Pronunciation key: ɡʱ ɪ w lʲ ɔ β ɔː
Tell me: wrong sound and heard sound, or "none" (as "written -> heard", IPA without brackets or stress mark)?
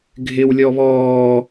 none